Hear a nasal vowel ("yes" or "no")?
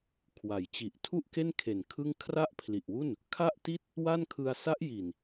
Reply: no